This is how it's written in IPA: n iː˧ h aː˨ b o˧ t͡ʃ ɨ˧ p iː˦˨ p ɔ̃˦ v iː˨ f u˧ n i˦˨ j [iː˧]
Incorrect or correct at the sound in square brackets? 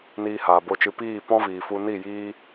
incorrect: iː˦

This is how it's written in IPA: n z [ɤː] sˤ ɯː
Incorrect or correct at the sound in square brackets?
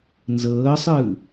correct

